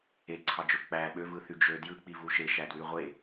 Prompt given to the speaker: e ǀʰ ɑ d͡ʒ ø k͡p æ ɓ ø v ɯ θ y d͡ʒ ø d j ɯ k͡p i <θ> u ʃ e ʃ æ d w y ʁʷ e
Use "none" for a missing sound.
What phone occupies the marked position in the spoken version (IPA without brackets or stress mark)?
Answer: v